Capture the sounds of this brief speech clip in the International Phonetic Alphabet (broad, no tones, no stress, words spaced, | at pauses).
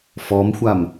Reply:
fɔmxʷam